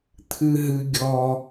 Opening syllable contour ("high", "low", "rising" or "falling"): high